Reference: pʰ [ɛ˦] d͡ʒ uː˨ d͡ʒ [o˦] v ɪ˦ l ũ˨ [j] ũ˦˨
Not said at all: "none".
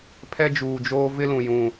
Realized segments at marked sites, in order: ɛ˦, oː˦, j

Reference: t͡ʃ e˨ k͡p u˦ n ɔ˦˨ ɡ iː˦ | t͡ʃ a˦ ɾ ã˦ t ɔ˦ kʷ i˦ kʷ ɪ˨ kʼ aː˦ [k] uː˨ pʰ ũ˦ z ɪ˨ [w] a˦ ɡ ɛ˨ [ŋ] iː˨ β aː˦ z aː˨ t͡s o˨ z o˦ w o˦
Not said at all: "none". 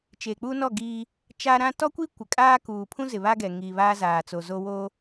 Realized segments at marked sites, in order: k, β, ŋ

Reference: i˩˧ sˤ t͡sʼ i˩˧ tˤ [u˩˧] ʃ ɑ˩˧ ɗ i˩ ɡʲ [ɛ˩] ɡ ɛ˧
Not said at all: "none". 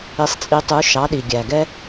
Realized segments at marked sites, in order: u˩˧, æ˩

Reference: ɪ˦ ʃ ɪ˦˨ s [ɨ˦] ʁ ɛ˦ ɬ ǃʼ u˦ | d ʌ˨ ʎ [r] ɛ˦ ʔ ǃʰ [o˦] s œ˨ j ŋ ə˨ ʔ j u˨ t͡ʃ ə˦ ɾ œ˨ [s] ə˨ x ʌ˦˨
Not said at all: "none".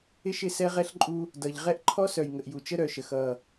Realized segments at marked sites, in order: ɛ˦, ʁ, ɔ˦, ʃ

